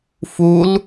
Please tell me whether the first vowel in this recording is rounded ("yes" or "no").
yes